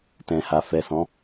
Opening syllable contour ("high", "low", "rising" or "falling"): low